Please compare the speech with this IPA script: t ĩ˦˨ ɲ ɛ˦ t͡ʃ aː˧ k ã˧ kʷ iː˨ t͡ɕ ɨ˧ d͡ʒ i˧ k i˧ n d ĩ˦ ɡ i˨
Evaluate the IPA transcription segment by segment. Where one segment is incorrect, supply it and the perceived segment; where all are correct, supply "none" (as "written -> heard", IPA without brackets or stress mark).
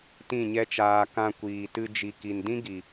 t͡ɕ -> t